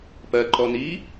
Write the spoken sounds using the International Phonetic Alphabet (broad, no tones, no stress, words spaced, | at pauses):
pɜǃɔ ni